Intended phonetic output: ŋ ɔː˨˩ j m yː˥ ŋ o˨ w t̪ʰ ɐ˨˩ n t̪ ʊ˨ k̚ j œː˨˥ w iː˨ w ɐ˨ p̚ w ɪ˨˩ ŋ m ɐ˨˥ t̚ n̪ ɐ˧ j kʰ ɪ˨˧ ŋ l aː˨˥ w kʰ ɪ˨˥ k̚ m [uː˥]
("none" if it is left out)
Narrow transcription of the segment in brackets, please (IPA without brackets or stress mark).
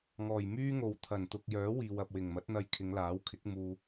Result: uː˧